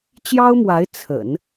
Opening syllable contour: high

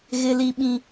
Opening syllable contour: high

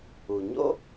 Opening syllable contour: low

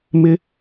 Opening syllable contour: high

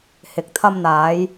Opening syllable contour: low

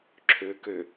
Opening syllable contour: low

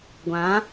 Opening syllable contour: rising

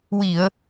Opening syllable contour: low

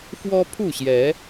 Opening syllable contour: high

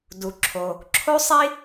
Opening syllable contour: low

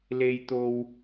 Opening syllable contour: high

